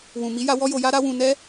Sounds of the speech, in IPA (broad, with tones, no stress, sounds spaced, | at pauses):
w ũ˨ m i˨˦ j a˧ w ɔ˦ j o˧ j a˦ ɾ a˦ w ũ˧ n ɛ˦